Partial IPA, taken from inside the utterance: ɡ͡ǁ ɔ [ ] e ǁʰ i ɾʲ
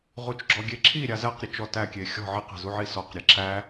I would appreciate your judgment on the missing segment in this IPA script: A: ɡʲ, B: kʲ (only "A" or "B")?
A